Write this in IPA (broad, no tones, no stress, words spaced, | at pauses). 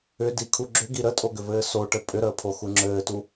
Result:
ʏdikʰu ɡ͡ǁʏɡi ɾətʼoɡʏvɘː soʈɘ pʼʏɾəːpʰo xuŋ͡ǁɘːtu